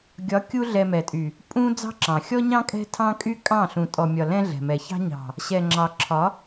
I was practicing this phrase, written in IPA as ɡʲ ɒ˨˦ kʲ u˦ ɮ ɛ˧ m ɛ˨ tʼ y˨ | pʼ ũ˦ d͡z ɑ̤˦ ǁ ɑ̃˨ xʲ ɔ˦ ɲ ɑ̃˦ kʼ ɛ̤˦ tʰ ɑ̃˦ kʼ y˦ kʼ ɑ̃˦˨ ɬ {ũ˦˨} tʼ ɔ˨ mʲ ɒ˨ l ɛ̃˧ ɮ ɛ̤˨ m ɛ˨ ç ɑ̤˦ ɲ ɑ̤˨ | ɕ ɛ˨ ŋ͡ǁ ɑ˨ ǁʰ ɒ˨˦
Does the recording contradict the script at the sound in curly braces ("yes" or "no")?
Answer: yes